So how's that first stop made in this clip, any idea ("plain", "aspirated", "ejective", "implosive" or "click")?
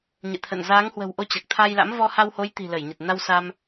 aspirated